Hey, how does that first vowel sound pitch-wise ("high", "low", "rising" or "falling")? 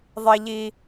high